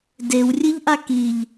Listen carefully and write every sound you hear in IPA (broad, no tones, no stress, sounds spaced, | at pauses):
d e w rʲ ɨ ʎ ʔ a k i ʎ